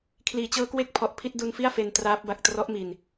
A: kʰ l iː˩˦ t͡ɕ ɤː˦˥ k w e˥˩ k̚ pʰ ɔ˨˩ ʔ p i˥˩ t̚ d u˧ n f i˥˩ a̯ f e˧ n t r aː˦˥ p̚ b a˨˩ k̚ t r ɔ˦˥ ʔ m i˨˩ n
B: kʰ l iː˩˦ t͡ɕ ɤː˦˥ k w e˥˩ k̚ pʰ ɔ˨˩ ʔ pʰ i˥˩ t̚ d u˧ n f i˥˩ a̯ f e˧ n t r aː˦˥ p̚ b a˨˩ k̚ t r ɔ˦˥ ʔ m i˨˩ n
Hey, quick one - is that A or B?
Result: B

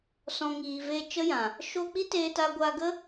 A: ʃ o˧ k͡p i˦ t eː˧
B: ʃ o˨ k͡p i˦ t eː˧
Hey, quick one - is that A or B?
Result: A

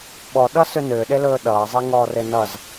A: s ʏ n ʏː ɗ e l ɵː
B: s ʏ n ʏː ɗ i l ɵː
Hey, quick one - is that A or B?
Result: A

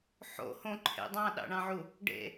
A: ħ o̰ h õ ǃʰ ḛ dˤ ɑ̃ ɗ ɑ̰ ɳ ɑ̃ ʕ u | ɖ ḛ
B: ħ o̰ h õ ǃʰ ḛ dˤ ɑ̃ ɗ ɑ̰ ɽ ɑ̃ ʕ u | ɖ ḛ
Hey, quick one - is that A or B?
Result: A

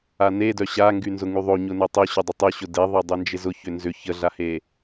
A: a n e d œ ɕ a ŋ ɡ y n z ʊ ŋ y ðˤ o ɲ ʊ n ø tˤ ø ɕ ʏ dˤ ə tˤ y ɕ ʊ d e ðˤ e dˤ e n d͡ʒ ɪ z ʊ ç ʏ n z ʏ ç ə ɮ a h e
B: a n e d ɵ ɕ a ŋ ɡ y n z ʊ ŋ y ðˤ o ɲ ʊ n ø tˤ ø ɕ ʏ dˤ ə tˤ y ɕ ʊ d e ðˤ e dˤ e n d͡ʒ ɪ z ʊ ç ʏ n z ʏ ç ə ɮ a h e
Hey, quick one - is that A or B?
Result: A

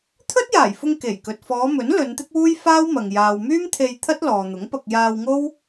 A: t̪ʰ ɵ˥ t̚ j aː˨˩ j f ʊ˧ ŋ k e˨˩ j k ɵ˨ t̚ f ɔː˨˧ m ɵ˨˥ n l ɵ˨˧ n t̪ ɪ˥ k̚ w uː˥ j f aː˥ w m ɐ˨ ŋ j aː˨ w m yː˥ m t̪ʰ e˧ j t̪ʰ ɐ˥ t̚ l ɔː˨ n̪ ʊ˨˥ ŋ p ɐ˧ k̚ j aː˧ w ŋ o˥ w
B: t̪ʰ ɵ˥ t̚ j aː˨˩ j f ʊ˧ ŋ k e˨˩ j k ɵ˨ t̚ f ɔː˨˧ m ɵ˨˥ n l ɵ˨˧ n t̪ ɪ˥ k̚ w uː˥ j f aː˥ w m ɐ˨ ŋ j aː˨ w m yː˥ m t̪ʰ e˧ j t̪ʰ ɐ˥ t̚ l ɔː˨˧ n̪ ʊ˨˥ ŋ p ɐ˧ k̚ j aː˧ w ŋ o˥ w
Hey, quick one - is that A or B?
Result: A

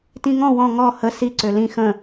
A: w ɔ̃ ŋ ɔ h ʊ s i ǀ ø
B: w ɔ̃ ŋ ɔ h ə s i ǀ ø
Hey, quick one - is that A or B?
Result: B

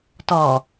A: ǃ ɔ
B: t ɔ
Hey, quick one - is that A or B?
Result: B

